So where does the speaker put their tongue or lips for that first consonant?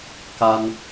velum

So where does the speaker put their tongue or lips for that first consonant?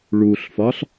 retroflex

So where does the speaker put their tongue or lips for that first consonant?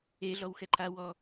tongue tip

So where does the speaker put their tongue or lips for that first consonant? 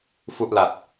lips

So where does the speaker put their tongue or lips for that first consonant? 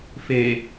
lips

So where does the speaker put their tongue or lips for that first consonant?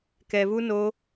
velum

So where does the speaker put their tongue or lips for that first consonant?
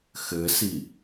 velum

